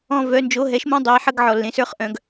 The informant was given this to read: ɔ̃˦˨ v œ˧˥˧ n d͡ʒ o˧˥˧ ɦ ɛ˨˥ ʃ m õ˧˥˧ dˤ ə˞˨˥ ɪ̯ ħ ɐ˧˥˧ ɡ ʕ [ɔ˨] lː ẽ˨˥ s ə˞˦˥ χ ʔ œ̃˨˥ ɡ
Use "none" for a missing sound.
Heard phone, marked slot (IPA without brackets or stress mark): ɔ˨